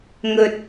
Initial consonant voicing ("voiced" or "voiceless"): voiced